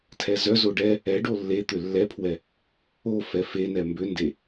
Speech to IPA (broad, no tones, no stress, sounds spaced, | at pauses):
tʰ ɛ z œ z o ɖ ɛ | ɛ ɖ o lː e t̪ ʏ lː ɛ pʰ w ɛ | o f ɛ f e n ɛ m b ʏ n d e